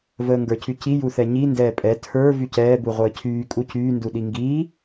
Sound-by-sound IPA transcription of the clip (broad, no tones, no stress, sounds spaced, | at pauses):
v əː ŋ ɡ ə˞ cʰ y c i j u θ ɛ ɲ i n d ɛː pʼ ɛ tʰ ə˞ v y c ɛː b u ʁʷ əː cʰ yː kʼ u c yː n d u ɗ i ŋ ɡ iː